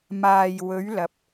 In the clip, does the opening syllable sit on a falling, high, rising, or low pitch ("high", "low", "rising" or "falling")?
low